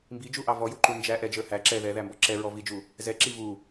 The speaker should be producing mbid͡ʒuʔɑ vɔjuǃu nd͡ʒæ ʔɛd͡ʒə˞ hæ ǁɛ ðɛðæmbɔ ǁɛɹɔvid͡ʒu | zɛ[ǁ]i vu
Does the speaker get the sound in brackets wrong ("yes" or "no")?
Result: no